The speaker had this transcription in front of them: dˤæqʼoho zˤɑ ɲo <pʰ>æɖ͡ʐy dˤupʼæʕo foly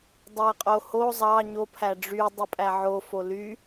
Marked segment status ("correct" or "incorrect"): correct